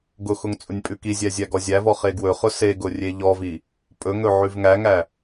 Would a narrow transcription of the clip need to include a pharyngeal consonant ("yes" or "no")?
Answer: yes